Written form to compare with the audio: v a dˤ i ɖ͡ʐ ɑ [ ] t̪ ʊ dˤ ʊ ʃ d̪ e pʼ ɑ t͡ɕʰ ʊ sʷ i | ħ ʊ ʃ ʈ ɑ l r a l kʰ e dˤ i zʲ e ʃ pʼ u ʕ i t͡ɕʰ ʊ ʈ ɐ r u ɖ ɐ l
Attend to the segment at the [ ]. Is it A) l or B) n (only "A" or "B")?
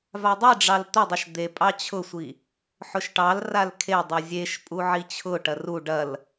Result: A